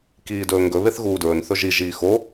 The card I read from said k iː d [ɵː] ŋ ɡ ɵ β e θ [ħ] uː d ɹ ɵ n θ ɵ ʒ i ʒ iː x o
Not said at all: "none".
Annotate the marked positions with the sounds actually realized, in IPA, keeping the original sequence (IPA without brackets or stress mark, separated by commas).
ɵː, ɣ